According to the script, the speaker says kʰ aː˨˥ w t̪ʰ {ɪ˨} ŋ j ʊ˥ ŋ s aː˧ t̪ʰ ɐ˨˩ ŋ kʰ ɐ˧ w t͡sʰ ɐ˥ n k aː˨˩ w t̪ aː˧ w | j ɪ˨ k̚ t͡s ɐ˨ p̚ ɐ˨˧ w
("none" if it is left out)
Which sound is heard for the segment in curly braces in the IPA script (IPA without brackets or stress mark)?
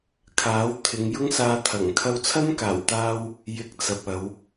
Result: ɪ˨˧